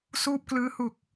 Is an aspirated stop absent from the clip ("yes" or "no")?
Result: yes